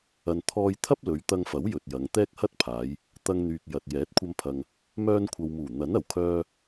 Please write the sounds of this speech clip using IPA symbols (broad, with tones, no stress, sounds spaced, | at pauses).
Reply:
ɐ˨ n t̪ʰ ɔː˧ j t̪ʰ ɐ˥ p̚ l ɵ˨˧ ɥ t̪ ɐ˧ ŋ f ɐ˨˥ w j ɵ˨ t̚ j ɐ˨˧ ŋ t̪ ɛː˥ k̚ h ɐ˥ t̚ pʰ aː˨˧ j | t̪ ɐ˧ ŋ n̪ yː˨ k̚ j ɐ˨ t̚ j ɛː˨˥ t̚ kʷʰ ɐ˧ m pʰ ɐ˨ ŋ | m œː˧ n kʷʰ ɐ˨ w m uː˨˩ n̪ ɐ˨˥ n ɐ˨˩ w kʰ œː˧